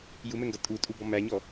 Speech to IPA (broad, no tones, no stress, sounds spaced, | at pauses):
j u m ɛ ŋ ɡ ʌ tʼ u tʼ u b ɔ m æ ɲ ɔ